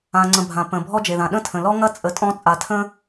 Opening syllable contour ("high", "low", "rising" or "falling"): low